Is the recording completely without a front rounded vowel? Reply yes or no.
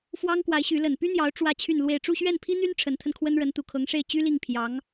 no